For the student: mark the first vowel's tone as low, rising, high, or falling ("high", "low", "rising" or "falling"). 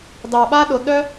low